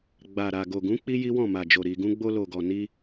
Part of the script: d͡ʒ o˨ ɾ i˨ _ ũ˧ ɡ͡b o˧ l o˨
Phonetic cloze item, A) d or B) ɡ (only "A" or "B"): B